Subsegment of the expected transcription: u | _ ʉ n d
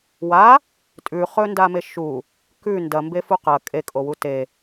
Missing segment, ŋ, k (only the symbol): k